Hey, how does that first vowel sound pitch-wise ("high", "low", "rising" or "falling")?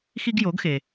high